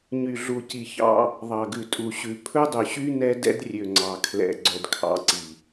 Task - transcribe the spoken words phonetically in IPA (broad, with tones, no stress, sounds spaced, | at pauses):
ɲ y˨ ɮ u˨ c i˨ ç ɑ̰˦ | ðˤ ɑ˨ ɡ ʉ˨ tʼ u˨ ɕ ʉ˨ pʰ ɵ˦ dˤ ɵ˨ ɕ y˦ n ɛ˦ d ɛ̰˦ d rʲ ø˨ ŋ͡ǀ ɑ˨ kʰ l ɛ̰˨ ɡ͡ǀ œ˨ d kʰ ɑ̰˨˦ ǀ i˨